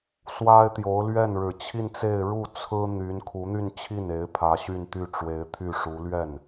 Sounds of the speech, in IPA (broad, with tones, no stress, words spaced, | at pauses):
swa˥ɪ̯t̪jo˧˥ʊ̯ lɥɛ˥˩nɻɻ̩˨˩t͡ɕʰi˥˧nt͡se˥˧ɪ̯ ɻu˥˩ t͡sʰɹ̩˥ n̪y˧˥n kʰu˧˥n̪y˥˧nt͡ɕʰi˥˩ne˧˥ɪ̯ pʰä˧˥ɕy˥˧nt̪y˥˩ ʈ͡ʂwe˧˥ɪ̯t̪ʰy˥˩ʂu˧˥ lɥɛ˥˩n